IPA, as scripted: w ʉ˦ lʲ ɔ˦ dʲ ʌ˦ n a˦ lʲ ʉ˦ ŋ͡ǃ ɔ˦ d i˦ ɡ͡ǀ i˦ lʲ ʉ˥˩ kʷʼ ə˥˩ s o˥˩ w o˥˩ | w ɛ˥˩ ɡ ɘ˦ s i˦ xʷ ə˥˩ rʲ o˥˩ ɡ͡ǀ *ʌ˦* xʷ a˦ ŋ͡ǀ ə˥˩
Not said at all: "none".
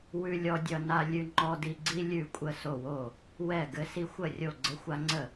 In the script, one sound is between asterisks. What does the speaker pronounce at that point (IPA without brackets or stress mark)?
ə˦